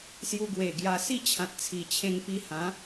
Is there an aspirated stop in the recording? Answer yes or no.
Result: yes